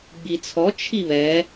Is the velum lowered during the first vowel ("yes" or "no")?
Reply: no